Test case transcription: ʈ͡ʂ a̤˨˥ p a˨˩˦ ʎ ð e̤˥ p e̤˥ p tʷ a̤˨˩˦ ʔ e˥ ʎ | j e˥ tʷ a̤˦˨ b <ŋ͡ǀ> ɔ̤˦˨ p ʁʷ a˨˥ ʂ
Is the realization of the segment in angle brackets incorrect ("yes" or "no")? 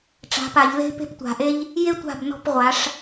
yes